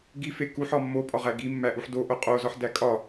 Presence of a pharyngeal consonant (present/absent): present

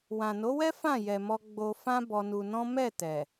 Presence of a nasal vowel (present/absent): present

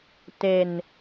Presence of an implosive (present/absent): absent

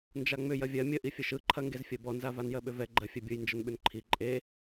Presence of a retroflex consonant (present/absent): absent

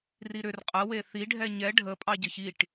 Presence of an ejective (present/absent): present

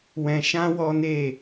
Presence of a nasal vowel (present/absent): present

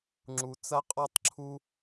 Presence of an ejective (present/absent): present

